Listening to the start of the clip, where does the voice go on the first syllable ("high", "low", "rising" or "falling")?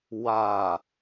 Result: low